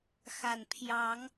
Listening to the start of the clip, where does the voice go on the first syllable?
low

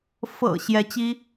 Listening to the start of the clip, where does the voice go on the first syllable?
low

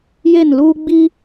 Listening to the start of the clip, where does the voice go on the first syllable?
falling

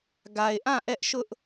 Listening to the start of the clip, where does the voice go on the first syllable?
low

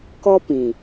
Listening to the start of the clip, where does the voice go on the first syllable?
high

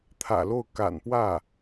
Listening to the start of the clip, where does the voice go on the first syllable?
low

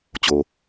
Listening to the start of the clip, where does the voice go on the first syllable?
low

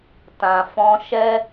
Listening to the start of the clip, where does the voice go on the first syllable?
low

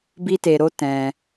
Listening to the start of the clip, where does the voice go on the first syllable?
high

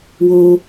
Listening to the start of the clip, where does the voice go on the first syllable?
low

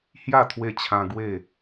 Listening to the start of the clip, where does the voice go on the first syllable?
falling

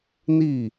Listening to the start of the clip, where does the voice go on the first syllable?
falling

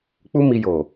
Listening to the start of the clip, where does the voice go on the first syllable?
high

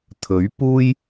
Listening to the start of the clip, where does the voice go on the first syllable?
rising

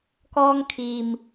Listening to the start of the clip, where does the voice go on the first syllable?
high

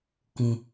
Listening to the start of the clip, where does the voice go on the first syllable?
low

